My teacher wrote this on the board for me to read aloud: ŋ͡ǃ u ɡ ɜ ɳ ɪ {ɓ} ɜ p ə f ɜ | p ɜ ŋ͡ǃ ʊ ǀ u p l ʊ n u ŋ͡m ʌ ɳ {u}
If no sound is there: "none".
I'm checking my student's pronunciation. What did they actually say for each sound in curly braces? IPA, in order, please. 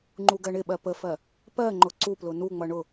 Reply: ɓ, ʊ

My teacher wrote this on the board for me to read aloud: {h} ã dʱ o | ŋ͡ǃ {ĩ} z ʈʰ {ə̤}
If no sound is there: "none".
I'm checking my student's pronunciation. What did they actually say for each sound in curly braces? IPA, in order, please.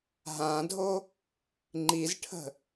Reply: ɦ, i, ə̤

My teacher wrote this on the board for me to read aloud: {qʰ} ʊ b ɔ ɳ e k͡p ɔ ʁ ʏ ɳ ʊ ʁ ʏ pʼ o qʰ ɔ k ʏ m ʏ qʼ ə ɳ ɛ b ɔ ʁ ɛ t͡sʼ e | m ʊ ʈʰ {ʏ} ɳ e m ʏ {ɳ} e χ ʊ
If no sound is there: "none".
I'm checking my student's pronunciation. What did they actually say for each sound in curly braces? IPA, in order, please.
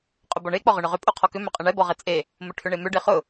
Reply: qʼ, ʏ, ɖ

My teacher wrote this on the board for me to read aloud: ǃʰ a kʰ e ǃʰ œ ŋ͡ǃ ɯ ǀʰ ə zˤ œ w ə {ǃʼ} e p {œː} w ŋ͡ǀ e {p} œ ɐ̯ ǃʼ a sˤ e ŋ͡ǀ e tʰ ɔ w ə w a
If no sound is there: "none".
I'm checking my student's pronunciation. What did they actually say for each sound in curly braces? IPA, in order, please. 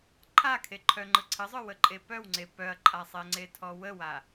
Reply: ǃʼ, œ, p

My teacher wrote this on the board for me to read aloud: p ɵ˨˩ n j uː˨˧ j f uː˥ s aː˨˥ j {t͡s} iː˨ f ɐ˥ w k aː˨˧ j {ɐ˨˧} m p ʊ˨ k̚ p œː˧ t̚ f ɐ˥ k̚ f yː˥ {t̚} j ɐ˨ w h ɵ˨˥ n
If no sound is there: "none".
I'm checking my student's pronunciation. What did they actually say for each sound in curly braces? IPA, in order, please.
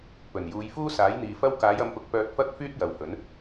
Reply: n̪, ɐ˨˧, t̚

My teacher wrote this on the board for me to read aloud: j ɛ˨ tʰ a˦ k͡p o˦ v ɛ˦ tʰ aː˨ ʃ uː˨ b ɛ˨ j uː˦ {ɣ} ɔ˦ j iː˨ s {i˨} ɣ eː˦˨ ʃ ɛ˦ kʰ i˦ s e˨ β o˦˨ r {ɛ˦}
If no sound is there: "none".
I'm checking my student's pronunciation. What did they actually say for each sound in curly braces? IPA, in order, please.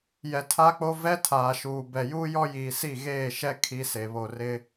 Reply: j, i˦˨, ɪ˦

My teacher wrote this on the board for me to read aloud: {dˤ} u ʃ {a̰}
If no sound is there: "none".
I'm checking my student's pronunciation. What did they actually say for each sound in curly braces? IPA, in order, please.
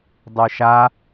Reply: dˤ, a

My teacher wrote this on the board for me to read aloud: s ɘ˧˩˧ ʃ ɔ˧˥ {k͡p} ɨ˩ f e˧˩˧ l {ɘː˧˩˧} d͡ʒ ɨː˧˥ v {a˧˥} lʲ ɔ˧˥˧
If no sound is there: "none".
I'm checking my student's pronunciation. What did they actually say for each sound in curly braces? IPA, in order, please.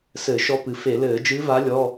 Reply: p, ɘː˧˩˧, a˧˥

